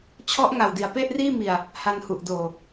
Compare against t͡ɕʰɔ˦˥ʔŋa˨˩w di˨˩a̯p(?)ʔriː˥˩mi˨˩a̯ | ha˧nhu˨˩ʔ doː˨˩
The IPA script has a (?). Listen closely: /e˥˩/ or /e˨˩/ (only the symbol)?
e˥˩